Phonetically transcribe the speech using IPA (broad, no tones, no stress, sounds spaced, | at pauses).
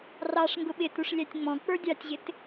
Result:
r ɑ ʂ ŋ ɡ ʊ ɓ ɪ t u ʂ lʲ æ tʲ ŋ͡m ɔ̃ k͡p ə˞ dʲ ɑ tʲ ʑ ɪ t